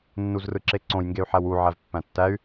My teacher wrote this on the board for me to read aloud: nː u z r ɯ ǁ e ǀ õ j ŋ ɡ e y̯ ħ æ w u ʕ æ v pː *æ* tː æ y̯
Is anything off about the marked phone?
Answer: yes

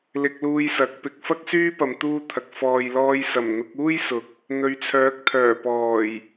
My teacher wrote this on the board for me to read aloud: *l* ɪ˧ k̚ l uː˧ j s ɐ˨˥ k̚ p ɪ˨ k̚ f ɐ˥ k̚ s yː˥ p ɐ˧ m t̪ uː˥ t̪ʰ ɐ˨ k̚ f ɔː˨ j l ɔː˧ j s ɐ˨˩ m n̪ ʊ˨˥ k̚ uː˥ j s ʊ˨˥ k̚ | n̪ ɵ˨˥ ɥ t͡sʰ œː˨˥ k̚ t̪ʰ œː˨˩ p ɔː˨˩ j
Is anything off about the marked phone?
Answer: no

